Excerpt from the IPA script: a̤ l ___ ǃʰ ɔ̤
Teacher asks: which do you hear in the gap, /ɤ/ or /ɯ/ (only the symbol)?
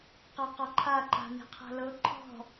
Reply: ɤ